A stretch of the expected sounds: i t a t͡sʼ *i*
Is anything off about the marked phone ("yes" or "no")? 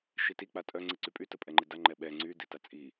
no